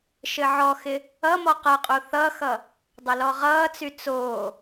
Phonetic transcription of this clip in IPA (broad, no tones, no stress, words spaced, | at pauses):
ʃɘʕɔxɪ | ʌmɔ qʌqʼo θʌxʌ | dˤʌlɔʁʌːt͡sy t͡soː